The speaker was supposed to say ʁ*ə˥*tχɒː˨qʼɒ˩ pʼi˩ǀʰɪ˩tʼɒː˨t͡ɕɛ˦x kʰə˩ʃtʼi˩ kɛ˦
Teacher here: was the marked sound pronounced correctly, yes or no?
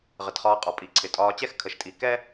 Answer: no